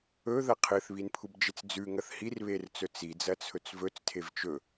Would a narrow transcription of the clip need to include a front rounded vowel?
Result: no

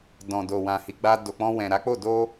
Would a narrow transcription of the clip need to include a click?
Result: no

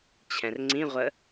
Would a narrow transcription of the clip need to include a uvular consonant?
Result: yes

